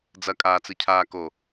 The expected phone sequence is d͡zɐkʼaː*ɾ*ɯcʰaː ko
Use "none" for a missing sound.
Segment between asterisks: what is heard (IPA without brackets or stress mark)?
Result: t͡s